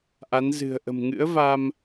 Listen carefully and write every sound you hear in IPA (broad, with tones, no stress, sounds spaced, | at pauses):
ʔ a˨˦ n z ɨ̤˨˩ ə̯ ʔ ə̤˨˩ m ŋ ɨ̰˧˥ ə̯ v a˧ m